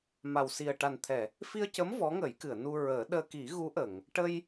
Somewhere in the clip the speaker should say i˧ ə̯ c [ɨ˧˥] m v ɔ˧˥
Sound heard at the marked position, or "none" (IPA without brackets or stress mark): ə˧˥